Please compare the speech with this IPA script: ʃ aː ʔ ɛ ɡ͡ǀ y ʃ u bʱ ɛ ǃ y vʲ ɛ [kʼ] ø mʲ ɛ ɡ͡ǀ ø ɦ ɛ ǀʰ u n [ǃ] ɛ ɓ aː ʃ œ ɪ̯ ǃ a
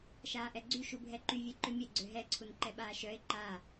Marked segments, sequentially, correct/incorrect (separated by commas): incorrect, correct